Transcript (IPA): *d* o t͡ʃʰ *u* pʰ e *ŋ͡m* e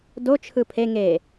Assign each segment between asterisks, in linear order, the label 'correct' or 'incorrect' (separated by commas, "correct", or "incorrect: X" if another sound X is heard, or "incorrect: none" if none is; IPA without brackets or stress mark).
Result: correct, incorrect: ɯ, incorrect: ŋ